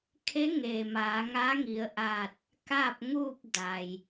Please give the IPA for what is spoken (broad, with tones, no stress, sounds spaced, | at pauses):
kʰ e˧˥ ŋ eː˩ m aː˩˧ ŋ aː˧˥ ŋ i˩˧ ə̯ ʔ aː˧˩ t̚ | k a˥˨ p̚ ŋ uː˥˨ p̚ d a˩ j